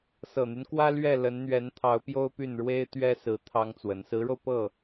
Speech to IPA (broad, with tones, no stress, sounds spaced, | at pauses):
s ɤ˨˩ n̪ y˦ n k w ä˥ l ɥ ɛ˥˩ l ə˧˥ n n̪ ɥ ɛ˧˥ n t̪ʰ ɑ˧˥ ʊ̯ p j o˥ ʊ̯ p y˥˩ n ɻ w e˥ ɪ̯ t̪ ɥ ɛ˥ s ɹ̩˧˥ t̪ʰ ɑ˥ ŋ t͡s w ə˧˥ n s ɹ̩˧˥ ɻ o˧ ʊ̯ p ɤ˥˩